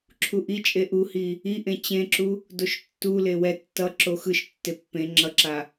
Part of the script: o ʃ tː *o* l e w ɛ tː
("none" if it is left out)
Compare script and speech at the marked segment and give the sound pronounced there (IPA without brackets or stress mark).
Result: u